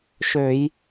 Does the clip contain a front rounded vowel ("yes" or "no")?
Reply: yes